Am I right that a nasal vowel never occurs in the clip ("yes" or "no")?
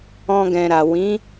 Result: no